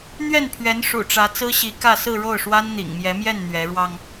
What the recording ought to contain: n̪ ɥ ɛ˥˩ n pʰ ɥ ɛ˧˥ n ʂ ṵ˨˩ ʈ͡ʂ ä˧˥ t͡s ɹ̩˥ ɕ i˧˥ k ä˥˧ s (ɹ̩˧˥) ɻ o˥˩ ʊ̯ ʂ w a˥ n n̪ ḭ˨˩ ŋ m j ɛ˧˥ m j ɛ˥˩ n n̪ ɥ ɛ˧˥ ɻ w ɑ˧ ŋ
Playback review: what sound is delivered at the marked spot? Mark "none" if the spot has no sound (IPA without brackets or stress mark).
ɹ̩˥˧